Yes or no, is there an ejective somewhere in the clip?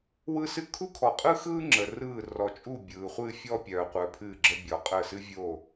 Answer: yes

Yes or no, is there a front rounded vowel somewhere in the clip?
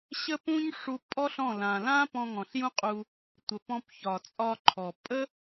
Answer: no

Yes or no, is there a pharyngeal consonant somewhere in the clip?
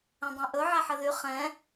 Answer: yes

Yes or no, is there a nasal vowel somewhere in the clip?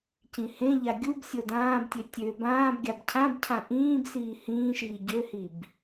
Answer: yes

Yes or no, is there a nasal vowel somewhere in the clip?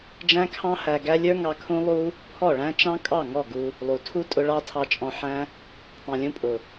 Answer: yes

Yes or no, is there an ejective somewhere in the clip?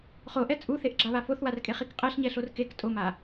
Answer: yes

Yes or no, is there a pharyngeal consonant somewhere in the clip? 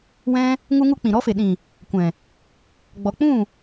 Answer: no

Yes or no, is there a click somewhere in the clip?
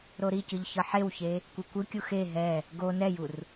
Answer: no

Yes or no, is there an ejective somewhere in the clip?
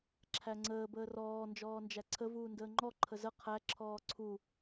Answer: no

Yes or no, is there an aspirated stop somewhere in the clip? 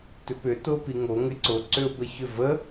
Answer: no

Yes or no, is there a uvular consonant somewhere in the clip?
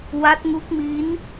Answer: no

